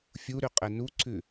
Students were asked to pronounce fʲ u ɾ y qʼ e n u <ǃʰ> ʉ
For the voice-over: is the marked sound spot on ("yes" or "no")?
no